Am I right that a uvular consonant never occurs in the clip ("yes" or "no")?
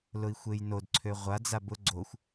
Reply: no